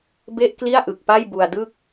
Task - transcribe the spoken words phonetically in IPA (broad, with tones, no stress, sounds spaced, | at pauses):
b e˥˩ ʔ k l i˥˩ a̯ ʔ ɯ˨˩ k̚ p a˥˩ j b u˧ a̯ d ɯ˥˩ k̚